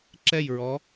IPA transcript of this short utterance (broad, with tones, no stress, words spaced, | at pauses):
ǁɛ˥˧jɹɔ˧˥